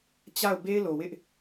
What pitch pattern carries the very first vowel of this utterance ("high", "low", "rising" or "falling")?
falling